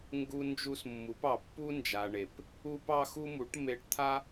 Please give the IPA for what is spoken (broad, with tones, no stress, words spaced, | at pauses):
ŋɡu˧nd͡ʒu˧smːu˩˧p ɑ˩pːu˧nd͡ʒa˩ɳe˩p | u˧pɑ˧xu˧mu˩˧ʈ me˧˥ʈt̪ʰa˥